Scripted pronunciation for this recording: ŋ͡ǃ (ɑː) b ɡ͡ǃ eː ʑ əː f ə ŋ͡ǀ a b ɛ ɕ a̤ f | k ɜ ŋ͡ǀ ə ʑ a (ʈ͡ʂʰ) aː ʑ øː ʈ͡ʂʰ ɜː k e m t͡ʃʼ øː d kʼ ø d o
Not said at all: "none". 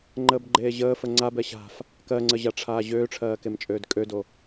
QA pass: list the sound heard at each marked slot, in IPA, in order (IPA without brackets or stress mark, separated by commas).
əː, ʈ͡ʂʰ